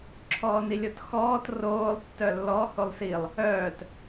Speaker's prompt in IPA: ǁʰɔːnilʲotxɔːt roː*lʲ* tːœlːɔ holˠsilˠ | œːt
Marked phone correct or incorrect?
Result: incorrect: lˠ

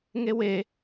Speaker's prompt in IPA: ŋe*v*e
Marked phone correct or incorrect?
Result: incorrect: w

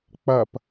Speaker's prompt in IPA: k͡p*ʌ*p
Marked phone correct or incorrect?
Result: correct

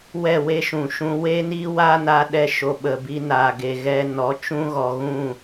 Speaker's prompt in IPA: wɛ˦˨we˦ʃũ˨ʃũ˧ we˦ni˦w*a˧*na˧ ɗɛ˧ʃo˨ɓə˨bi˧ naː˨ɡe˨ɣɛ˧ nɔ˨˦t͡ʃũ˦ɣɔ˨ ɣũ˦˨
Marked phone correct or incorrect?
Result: incorrect: a˦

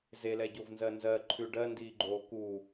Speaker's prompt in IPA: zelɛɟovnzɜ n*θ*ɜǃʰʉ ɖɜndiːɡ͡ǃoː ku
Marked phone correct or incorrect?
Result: incorrect: z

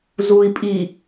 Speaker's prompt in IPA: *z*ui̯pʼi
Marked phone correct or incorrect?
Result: correct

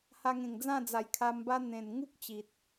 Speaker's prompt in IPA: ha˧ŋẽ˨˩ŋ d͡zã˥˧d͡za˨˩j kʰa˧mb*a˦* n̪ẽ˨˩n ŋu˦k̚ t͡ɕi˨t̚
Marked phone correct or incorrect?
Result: correct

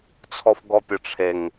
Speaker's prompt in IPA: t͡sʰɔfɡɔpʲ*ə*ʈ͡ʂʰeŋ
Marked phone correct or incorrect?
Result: correct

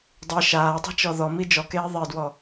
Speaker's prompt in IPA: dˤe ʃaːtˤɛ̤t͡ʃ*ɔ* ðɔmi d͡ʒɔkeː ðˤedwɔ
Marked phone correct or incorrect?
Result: correct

